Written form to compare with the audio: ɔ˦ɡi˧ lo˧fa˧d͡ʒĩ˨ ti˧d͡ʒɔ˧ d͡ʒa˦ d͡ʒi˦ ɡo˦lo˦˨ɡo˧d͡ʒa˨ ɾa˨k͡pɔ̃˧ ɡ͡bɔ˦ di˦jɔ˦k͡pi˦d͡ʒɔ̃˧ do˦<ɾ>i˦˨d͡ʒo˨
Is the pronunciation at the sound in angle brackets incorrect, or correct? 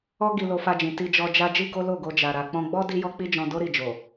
correct